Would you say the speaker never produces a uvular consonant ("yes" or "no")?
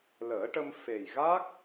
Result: yes